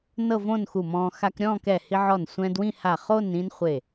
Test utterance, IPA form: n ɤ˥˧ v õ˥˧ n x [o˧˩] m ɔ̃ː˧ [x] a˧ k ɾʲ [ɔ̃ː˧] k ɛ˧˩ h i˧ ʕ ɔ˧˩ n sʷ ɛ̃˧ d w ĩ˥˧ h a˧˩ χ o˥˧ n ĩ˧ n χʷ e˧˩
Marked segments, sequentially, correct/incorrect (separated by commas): incorrect, correct, incorrect